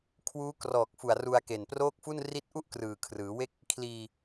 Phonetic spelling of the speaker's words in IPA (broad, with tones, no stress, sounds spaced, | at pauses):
kʰ w uː˦˥ k r ɔː˨˩ k̚ f u˨˩ a̯ r u˧ a̯ k e˨˩ n p r oː˥˩ k̚ f u˥˩ n r i˦˥ t̚ ʔ u˥˩ ʔ k r ɯː˨˩ kʰ r ɯː˩˦ w e˥˩ k̚ | kʰ l iː˧